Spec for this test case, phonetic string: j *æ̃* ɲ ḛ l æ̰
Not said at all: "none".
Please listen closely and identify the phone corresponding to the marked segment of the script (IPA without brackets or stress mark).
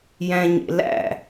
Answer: æ̃